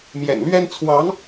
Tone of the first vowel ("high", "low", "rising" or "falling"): low